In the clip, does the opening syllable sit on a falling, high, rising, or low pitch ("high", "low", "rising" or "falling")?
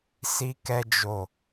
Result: high